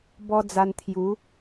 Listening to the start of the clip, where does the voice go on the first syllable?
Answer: high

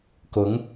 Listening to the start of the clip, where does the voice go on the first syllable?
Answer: rising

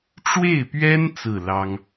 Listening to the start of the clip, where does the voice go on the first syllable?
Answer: falling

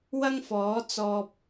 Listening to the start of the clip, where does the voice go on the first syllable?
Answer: high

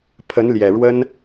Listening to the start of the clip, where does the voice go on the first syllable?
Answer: rising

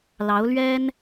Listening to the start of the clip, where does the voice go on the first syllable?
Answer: rising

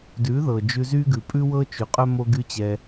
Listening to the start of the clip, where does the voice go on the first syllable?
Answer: rising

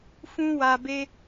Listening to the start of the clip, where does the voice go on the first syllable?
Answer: high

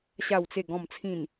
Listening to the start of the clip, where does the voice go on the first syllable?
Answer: low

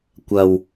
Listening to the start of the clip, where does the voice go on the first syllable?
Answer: low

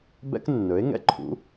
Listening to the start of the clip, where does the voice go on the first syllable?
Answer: high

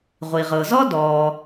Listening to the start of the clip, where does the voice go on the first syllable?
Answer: low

